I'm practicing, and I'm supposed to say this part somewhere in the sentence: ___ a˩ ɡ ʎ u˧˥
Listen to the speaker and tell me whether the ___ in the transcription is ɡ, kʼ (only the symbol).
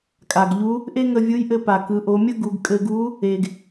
kʼ